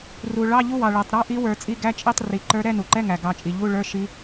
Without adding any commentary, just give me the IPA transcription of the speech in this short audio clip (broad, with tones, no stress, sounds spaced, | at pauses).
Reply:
r u˩ ɭ ɑ˧˥˧ ʎ u˧˥˧ w ɑ˩ ɭ ɛ˩ tˤ ɾ ɑ˧˥˧ ʔ i˧˥ w ə˞˨˩˦ t͡sʼ i˧˥˧ ɡ æ˧˥˧ t͡ʃʼ i˧˥˧ tˤ r i˩ ǃ ə˞˧˥ ɾ ɛ˧˥˧ n u˩ ǃ ɛ˧˥˧ ŋ æ˩ ɡ ɑ˨˩˦ t͡ʃʼ i˩ ʎ u˧˥˧ ɭ ə˞˧˥˧ ʃ i˧˥